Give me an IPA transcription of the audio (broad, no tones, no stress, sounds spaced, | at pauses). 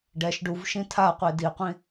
ɖ ɛ ʃ ɖ u v ʃ ĩ tʰ a qʷ i d i qʷ ĩ